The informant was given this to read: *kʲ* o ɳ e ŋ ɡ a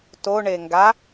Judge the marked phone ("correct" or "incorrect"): incorrect